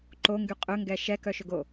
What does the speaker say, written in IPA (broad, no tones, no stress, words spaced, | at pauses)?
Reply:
ǃoŋɡy qʼɵŋɡɛ ʃɛkœʃɵɡo